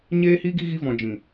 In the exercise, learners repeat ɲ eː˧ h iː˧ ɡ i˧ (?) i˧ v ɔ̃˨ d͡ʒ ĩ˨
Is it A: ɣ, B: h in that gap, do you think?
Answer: A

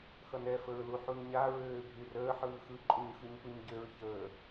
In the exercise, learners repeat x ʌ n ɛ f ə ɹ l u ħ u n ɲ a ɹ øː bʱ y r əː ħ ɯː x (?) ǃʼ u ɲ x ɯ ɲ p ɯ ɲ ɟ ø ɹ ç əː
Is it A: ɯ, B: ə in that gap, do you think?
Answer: A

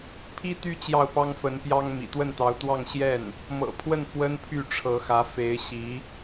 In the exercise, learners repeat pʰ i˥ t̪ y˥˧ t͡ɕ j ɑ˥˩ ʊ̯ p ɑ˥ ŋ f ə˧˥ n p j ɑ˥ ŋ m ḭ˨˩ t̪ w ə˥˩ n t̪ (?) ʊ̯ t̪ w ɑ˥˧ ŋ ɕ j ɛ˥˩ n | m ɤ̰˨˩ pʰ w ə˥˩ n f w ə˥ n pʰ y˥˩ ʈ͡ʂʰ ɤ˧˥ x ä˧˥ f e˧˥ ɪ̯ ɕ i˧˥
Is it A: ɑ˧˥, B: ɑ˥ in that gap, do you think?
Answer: A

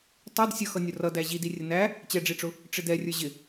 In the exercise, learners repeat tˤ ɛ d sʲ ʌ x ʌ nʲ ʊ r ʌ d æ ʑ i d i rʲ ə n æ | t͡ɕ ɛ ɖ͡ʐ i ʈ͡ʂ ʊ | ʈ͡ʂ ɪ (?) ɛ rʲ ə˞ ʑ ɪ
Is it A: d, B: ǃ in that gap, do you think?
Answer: A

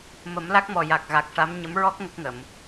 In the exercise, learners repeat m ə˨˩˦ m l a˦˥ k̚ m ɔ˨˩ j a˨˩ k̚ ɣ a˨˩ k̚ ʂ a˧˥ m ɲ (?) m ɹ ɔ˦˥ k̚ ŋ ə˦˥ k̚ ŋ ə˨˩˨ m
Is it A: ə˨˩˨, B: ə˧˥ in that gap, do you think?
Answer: B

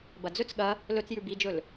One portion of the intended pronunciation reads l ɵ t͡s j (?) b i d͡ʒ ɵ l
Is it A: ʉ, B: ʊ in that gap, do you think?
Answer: A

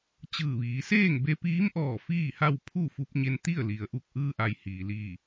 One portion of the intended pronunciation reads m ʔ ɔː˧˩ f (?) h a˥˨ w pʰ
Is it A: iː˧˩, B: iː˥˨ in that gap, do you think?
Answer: B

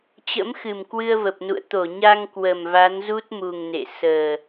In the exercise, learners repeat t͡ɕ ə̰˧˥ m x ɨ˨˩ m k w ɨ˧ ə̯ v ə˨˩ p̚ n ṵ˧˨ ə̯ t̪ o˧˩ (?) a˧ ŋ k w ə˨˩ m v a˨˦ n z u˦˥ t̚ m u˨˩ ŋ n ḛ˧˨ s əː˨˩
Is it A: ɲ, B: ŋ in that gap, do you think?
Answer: A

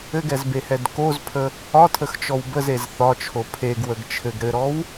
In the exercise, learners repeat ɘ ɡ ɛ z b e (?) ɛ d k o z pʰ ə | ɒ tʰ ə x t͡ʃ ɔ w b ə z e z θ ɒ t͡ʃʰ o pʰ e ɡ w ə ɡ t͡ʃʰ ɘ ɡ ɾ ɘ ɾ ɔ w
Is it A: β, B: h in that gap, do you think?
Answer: B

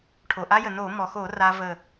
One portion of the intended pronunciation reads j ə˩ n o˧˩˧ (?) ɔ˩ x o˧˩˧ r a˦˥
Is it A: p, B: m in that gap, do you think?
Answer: B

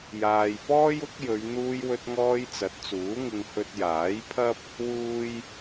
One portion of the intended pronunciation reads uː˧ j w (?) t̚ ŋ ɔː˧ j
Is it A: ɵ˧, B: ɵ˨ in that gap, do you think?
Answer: A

